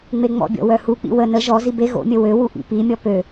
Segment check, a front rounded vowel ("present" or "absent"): present